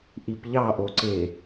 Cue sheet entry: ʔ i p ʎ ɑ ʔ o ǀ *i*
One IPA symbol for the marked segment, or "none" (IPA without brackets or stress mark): e